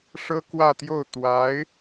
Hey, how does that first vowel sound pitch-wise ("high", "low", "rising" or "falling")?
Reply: high